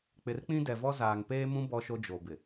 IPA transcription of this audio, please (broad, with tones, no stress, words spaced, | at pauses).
k͡pɪ˨rk͡pĩ˦dɛ˨vɔ˦ zaː˨ŋpeː˦mũ˦ bɔ˦ʃo˦d͡ʒo˨bɪ˨